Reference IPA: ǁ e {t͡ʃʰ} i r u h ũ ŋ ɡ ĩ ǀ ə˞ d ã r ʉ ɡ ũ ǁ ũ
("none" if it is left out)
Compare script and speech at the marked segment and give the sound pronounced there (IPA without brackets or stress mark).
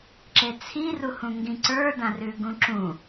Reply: t͡sʰ